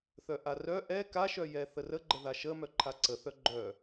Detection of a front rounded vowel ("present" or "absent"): present